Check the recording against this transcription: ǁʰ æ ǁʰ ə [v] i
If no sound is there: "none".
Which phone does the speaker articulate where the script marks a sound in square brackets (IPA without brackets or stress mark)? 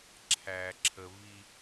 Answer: v